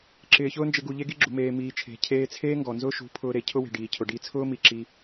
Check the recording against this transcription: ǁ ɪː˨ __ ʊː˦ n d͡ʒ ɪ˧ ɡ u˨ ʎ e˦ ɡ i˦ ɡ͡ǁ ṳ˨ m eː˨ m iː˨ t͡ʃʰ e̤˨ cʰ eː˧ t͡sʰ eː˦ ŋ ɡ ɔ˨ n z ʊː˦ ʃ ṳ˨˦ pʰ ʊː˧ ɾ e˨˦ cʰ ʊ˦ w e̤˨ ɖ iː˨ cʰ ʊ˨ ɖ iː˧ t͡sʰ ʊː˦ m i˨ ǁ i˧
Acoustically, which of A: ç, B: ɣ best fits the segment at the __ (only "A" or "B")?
A